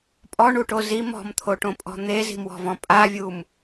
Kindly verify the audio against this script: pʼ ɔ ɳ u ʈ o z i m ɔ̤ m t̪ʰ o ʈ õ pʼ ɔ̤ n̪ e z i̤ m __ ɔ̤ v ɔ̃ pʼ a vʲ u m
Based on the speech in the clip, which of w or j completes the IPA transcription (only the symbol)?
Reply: w